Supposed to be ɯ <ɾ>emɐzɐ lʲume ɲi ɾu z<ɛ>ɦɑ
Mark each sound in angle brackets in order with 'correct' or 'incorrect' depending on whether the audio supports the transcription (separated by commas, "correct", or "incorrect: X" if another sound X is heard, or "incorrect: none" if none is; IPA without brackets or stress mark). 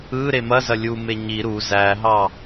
correct, incorrect: æ